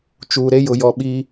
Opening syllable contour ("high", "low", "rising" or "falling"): low